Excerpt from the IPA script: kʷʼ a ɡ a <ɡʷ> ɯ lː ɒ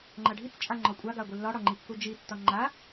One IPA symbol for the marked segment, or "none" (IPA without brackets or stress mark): ɡʷ